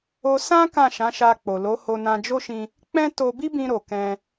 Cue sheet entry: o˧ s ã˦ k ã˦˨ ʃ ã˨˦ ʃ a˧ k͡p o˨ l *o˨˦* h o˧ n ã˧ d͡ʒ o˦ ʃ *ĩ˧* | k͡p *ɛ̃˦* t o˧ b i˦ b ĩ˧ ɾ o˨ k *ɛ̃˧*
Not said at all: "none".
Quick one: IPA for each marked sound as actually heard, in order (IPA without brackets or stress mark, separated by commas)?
o˨˦, ĩ˧, ɛ̃˦, ɛ̃˧